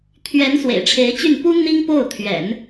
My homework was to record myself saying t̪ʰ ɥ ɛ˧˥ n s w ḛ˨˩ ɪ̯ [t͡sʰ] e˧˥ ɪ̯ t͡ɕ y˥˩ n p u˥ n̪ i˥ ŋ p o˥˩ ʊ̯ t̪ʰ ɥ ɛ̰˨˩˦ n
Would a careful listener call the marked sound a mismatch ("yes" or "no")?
yes